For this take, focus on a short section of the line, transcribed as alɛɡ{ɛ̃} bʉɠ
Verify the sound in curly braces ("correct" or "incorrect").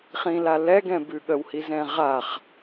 correct